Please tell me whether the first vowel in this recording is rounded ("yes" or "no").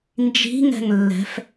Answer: no